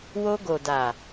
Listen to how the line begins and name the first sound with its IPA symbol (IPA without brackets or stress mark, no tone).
w